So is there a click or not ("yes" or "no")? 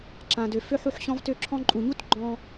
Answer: yes